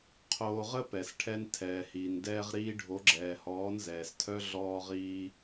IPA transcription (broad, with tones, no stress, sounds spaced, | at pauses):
qʰ oː˧ ʁ ə˦ p ɛ˨ s ʈʰ ɛ˧ n tʰ ɛː˨ h iː˨ n d ɛː˧ ʁ ɾ iː˧ ɖʱ o˨˦ ɡ͡ǁ ɛː˨ h ɔː˨˦ n z ɛː˨ s tʰ œ˦ ɮ ɔː˧ ʁ iː˧